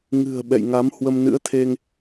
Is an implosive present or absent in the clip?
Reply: present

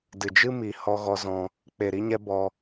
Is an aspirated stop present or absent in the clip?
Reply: absent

